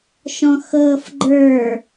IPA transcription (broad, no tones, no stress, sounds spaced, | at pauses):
ʃ ɔ̃ x ɤː f ɡ͡ǃ ə˞